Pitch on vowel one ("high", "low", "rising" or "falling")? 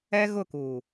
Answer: high